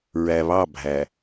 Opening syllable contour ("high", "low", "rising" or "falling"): low